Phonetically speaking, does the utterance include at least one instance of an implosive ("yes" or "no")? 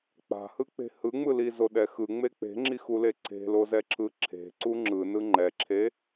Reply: yes